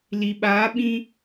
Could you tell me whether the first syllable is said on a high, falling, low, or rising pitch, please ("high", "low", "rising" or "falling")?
low